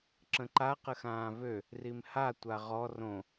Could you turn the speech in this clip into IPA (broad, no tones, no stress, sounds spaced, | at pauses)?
ǁ ə̃ ǃ a q ə x ãː v ø | r i m h a tʷ a ʁ ɔ r õ